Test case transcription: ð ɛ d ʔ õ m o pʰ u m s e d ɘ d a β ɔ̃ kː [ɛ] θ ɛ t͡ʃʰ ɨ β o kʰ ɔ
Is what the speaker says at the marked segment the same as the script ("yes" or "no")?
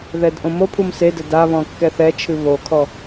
yes